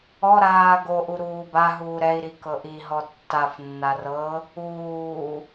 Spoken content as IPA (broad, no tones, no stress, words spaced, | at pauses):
ɔ ɾaːɡoʔu ɾuːbaɦuː ɾɛi̯ɾi kɤʔiɦɔ tːafnːar ɤ | uː